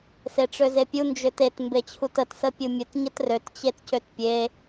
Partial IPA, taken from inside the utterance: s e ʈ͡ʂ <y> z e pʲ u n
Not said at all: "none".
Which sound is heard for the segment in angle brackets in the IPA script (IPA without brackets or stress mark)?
ø